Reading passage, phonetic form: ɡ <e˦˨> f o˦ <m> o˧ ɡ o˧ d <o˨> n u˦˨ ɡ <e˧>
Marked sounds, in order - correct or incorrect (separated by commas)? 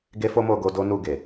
incorrect, correct, incorrect, incorrect